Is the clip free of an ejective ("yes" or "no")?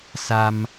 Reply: yes